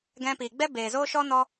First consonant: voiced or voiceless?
voiced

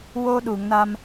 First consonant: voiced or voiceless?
voiced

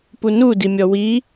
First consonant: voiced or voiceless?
voiceless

